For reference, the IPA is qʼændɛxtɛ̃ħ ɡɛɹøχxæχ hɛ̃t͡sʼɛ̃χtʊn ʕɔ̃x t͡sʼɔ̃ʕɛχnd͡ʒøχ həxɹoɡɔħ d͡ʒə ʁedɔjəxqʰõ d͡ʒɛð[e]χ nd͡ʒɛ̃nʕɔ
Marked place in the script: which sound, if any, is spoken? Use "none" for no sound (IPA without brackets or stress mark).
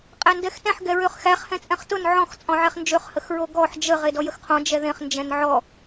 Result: ẽ